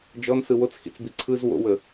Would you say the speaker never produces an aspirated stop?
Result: no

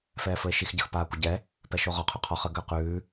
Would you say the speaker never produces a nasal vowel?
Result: yes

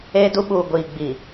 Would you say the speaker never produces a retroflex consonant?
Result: yes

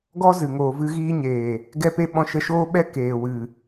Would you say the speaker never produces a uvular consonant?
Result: yes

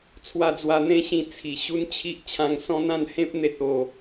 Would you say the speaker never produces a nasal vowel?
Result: no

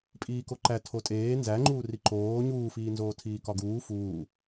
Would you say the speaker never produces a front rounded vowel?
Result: yes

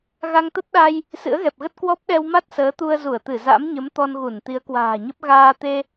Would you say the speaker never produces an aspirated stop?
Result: yes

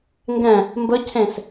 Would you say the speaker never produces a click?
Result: yes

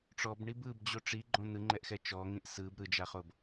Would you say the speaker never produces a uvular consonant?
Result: no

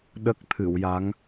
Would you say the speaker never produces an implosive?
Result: no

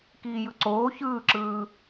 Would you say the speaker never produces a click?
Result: no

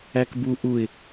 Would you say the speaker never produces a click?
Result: yes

